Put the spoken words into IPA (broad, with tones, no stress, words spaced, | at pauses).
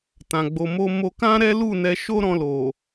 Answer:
tã˨ɡ͡bo˧mo˦ mo˧kã˦ ɾɛ˦lu˦˨ nɛ˧ʃo˦ɾɔ̃˧ lo˨